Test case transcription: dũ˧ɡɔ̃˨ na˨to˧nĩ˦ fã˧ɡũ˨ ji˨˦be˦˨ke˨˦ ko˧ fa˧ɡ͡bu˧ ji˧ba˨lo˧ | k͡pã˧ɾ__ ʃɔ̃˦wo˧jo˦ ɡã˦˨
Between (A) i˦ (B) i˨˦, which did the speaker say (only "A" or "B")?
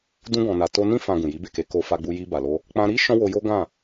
A